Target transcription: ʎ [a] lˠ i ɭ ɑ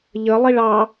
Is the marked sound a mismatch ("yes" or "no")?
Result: yes